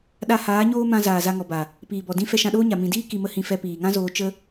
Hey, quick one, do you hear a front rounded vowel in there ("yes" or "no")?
no